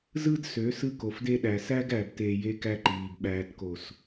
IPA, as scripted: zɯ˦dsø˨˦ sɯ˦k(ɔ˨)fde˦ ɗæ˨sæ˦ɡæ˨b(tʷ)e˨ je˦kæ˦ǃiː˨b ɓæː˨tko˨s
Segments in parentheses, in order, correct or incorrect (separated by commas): incorrect, incorrect